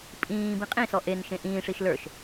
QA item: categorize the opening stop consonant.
ejective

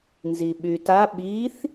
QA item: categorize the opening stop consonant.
implosive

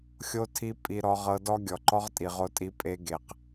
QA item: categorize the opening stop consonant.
aspirated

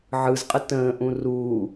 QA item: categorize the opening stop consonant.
ejective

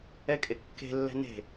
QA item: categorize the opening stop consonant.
ejective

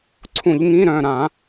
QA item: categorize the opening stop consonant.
click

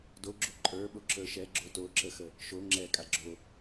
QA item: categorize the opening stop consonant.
plain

